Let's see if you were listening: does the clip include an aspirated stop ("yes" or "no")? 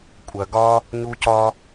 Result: no